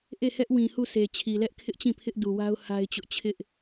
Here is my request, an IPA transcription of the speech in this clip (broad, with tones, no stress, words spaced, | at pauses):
ʔe˦˨hɛ˦ʔwĩ˨ hu˦˨sʰe˨ t͡ɕʰi˨lɛ˦ʔkʰɪ˦ʔt͡ɕĩ˦˨ pʰɪ˦ʔdu˨wa˦ʊ̯ ha˦ɪ̯t͡ɕʊ˦ʔ t͡ɕʰɪ˦ʔ